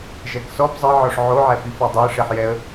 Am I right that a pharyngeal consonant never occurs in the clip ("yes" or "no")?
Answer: no